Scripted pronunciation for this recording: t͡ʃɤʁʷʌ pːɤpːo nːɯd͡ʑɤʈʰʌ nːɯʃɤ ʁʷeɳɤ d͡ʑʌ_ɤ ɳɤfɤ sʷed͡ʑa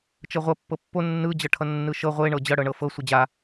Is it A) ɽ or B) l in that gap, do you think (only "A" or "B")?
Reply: A